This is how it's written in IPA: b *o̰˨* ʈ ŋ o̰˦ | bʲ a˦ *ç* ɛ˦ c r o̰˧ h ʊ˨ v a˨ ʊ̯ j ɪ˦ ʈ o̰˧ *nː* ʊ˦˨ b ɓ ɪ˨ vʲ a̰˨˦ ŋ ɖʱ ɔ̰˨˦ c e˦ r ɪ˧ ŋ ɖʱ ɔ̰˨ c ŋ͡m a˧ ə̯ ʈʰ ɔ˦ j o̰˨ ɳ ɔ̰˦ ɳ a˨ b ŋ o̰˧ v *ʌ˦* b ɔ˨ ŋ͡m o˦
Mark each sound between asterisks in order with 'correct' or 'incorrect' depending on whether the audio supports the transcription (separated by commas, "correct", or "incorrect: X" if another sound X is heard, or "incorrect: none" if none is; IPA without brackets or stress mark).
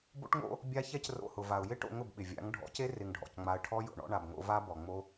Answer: incorrect: o̰˦, correct, incorrect: ŋ, incorrect: a˦